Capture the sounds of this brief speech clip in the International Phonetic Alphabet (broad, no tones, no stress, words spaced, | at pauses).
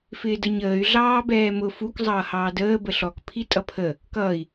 fɪːdəɲəːy̯ ɮɑːbɛːmʊ fuk zˤʌːhɑːdəː bəɬɔk pʰitʼʌpʰə | kʌːi̯